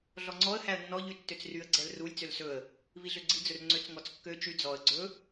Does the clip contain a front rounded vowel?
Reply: yes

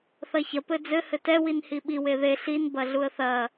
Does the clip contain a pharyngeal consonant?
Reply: no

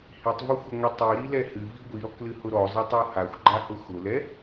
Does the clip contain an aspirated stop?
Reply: no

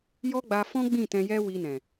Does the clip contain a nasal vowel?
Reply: yes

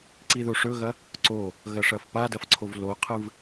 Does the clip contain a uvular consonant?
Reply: yes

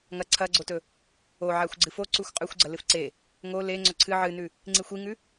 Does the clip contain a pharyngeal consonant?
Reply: yes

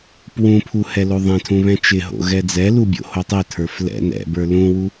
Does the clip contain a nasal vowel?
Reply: yes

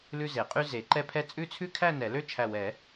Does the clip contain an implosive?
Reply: no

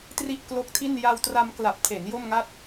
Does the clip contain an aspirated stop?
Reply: yes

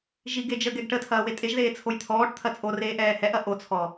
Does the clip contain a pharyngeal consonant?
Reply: no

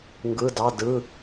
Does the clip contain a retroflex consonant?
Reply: no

